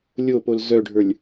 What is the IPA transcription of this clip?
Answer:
lʲ o p o l z œ ɖʱ ə˞ lʲ

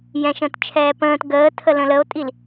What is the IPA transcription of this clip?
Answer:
j ɛ̃ ʃ ə̃ː t t͡ʃʰ ɛː p ə̃ː t ɡ əː tʰ ə l ə̃ l ə o̯ tʼ i l

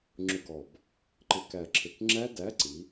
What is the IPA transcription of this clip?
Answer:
ŋ͡ǁ ʊ˧˩˧ ɡ ɔ˨˩ b | ǃ ɪ˧˩˧ k æ˨˩ ǁʰ ɪ˨˩ k ŋ͡ǁ æ˦˥ d æ˨˥ ǀ i˩˧

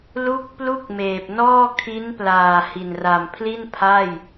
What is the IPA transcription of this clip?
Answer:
l u˥˩ k̚ p l u˥˩ k̚ m eː˨˩ p̚ n ɔː˥˩ kʰ i˦˥ n p l aː˨˩ h i˨˩ n r a˨˩ m pʰ l i˥˩ n pʰ a˥˩ j

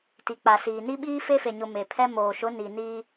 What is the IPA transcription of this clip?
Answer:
t i˨ k͡p a˨ s iː˨ n i˦ ɓ iː˦ f e˦ f e˨ ɲ ʊ˨ m e˨ pʰ ɛ˦ m oː˨ ʃ ʊ˨˦ n i˨ n iː˦

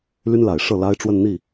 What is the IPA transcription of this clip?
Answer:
l y˥ n l a˨˩ ɪ̯ ʂ ɤ˥˩ l a˥ ɪ̯ ʈ͡ʂ w ə˥˧ n n̪ i˥˩

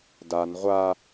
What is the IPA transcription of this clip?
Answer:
d a n ʁʷ a

